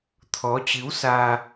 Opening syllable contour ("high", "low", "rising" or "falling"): rising